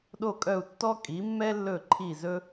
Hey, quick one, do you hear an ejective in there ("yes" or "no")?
yes